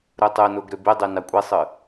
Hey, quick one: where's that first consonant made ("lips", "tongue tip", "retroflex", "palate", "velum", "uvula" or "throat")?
tongue tip